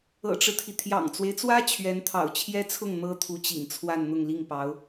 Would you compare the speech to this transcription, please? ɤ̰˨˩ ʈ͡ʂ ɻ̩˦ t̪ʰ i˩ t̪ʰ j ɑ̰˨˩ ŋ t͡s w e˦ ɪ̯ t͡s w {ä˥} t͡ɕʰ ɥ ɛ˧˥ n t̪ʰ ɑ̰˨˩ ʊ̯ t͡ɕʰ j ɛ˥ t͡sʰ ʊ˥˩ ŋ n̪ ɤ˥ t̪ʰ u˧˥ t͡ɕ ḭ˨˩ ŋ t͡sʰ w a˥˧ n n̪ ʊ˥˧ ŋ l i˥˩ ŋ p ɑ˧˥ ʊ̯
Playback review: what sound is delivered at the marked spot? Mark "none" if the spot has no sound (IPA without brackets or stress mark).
ä˥